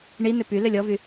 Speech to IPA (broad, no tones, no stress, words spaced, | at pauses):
ɳinʏ py lʏlʲɔvy